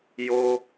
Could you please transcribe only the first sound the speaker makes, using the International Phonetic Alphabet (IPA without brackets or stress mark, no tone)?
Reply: j